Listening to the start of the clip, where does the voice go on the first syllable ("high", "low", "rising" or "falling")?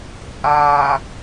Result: low